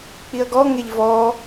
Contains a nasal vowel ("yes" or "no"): no